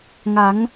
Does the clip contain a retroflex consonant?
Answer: no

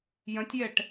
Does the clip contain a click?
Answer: no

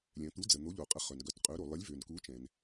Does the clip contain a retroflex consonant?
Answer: no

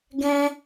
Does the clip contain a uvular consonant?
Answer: no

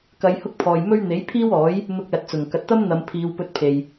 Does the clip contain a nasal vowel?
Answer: no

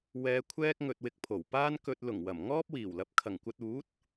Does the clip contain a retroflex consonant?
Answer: no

